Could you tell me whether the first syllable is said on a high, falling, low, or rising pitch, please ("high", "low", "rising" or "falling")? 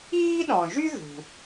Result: high